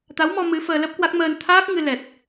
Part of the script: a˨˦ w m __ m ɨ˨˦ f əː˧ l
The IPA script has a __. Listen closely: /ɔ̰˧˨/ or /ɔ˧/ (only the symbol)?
ɔ˧